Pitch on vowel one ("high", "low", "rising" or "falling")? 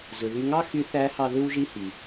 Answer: low